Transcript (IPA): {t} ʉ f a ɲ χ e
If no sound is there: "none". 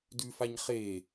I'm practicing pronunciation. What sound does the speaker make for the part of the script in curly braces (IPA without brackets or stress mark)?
d